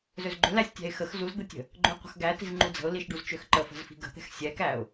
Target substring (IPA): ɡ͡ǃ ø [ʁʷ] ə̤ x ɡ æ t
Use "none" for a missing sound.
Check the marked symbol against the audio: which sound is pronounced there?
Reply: qʷ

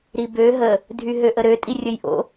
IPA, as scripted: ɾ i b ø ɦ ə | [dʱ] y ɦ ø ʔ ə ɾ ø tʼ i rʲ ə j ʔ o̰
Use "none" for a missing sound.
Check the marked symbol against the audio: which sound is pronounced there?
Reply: dʱ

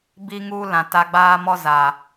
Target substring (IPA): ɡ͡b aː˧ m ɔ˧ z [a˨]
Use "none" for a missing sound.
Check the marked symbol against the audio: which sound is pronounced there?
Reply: a˨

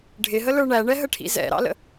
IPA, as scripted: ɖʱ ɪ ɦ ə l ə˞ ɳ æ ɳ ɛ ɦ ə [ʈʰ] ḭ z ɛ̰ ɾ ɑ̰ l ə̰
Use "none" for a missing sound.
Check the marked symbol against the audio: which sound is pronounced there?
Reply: ʈʰ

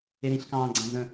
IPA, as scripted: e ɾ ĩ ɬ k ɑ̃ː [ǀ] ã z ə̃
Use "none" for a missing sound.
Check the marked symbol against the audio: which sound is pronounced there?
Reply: ɡ͡ǀ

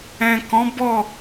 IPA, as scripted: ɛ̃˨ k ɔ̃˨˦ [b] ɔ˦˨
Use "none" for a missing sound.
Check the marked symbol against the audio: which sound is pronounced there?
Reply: b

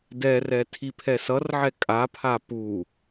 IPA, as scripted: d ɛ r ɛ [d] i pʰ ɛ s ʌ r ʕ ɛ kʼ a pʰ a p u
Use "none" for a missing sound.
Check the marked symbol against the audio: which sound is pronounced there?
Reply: tʰ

